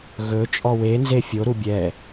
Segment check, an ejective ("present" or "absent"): present